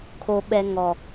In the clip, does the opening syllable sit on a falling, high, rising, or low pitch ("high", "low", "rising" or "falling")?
low